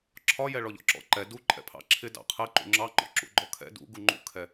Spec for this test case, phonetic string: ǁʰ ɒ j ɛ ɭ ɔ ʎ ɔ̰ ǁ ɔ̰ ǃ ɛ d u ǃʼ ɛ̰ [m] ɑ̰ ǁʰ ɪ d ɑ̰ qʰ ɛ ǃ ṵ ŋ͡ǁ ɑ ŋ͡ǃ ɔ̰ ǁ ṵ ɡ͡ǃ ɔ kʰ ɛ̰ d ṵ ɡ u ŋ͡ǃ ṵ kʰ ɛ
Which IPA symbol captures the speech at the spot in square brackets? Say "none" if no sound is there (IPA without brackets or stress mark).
pʰ